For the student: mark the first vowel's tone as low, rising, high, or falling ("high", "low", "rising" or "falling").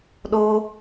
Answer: high